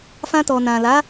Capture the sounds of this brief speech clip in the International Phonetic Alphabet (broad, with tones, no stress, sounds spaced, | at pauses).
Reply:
f ã˧ t ɔ˨ n ã˨ l a˨˦